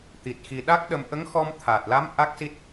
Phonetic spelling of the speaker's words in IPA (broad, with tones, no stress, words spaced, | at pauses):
t̪i˨˩t̚xi˨˩ ɗa˦˥k̚ɗə˧m ʔə˧˥ŋxɔ˧m t̪ʰaː˨˩t̚la˧˥m ʔa˦˥k̚si˦˥t̚